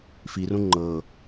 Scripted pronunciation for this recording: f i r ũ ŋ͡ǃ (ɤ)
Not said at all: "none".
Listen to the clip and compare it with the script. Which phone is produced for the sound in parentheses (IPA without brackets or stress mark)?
ɤ